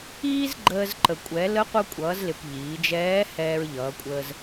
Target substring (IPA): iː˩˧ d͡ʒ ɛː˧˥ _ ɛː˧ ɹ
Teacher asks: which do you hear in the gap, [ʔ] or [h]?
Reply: h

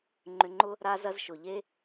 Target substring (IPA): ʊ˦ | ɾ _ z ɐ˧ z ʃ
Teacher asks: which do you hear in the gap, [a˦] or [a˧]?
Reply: a˧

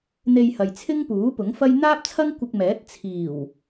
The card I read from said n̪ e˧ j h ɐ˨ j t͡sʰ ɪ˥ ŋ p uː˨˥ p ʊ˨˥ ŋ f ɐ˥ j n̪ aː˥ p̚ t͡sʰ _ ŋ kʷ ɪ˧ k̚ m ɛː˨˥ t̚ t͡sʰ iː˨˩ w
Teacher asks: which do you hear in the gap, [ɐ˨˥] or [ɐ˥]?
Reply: ɐ˥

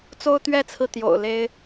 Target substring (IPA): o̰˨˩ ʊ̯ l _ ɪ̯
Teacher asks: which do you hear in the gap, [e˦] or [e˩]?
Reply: e˦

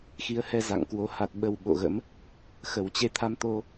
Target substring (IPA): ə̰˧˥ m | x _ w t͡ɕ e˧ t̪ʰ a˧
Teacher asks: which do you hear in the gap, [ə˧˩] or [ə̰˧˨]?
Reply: ə˧˩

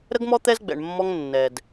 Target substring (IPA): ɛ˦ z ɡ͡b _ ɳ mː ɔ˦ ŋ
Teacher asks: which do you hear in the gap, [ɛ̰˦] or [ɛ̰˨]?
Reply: ɛ̰˨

